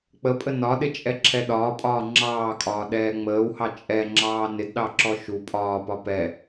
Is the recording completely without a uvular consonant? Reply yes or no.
yes